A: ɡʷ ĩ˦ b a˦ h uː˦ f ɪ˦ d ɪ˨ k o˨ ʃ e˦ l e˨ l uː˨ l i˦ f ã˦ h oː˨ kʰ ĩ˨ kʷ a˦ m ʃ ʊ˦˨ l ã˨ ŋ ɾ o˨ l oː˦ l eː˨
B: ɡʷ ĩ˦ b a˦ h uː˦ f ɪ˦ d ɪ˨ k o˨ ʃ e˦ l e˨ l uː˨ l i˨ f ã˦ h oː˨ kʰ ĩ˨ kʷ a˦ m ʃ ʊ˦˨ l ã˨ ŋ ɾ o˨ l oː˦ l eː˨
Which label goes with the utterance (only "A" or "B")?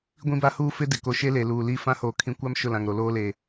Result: A